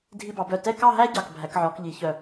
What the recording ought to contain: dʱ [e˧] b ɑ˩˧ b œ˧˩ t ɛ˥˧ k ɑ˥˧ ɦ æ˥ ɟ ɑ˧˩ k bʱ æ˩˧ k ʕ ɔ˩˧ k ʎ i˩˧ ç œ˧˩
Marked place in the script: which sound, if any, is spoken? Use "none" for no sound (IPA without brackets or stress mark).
i˧